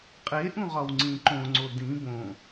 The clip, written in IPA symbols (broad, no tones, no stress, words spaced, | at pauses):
qʼe ʔũʁɒwŋ͡ǀĩ ǃõŋ͡ǀo dĩ bõ